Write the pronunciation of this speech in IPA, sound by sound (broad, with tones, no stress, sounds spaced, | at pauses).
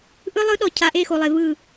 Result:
ʔ ɯ˦ lˠ ɯ˦ ɗ ɔ˨ cʰ a˨ ʔ e˦˨ x o˨ lˠ e˨ v ɯ˦˨